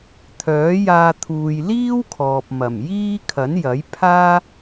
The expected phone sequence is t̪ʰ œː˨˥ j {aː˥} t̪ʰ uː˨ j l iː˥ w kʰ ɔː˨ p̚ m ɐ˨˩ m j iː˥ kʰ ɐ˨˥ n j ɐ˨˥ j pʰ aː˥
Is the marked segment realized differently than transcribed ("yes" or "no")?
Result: yes